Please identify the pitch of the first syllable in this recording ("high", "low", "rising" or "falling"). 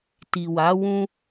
low